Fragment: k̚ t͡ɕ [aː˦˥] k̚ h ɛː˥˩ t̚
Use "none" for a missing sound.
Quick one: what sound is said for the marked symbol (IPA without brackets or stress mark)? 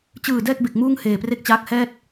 aː˦˥